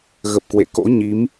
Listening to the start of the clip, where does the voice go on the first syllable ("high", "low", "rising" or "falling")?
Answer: low